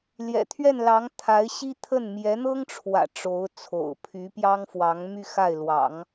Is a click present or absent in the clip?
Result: absent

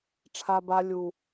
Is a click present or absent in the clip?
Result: absent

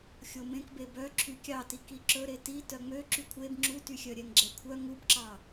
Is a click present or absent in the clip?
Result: present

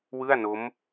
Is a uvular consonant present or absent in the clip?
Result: absent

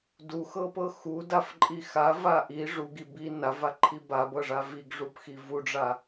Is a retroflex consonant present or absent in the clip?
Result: present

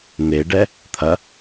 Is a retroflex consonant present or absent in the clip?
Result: present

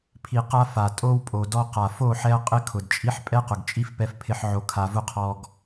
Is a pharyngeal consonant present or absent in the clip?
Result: present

